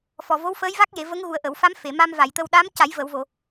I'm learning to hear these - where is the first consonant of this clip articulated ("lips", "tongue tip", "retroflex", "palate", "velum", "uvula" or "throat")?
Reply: lips